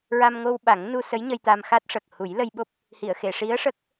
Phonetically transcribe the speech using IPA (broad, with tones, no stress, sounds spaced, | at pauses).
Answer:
ɹ a˧ m ŋ o˧ w ɓ a˨˩˦ ŋ n u˧ s ə˧˥ j ɲ ə˧ j t̪ a˧ m x a˦˥ t̚ ʂ ə˨˩ k̚ h u˨˩˦ j l ə˧ j ɓ o˦˥ p̚ | h i˨˩˨ ə̯ x e˨˩˨ ʂ i˧˥ ə̯ ʂ ə˦˥ k̚